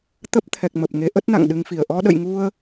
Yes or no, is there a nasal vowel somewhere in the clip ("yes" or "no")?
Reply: no